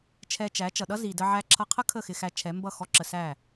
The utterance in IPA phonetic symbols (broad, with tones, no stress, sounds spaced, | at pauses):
t͡ʃʰ ɛ˧ t͡ʃ æ˨˦ t͡ʃ ʌ˨ ɗ ʌ˦ z i˨ d ə˧ ʕ æ˧ ǁʰ ʌ˧ qʰ ə˦ kʰ ə˦˨ x ɪ˧ x æ˧ t͡ʃʰ ɛ˨˦ m b ʌ˦˨ x ɔ˦ ǁ ə˧ s æ˦˨